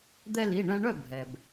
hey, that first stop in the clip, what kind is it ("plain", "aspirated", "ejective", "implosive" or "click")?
plain